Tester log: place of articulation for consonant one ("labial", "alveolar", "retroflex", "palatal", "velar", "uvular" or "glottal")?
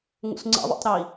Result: velar